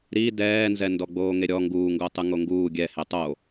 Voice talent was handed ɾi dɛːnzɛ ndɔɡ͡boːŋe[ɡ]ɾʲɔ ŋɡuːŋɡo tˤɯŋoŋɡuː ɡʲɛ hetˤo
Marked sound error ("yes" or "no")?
yes